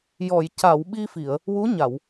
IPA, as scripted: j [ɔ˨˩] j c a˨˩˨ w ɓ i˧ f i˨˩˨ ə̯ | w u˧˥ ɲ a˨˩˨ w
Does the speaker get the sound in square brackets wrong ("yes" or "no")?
yes